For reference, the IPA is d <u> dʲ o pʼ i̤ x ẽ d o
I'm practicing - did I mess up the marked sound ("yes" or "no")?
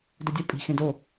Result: yes